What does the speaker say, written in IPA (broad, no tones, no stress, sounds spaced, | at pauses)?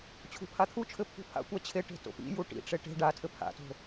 t͡ɕʰ ṳ pʰ a t̪ʰ u t͡ʃʰ ɘ pʰ ṳ pʰ a̰ kʷ a t͡ɕʰ e ʈ e̤ t o̰ p ḭ j u ʈ ḭ ʈ͡ʂ e ʈ e̤ ɖ a tʰ ɘ pʰ a̰ t o̤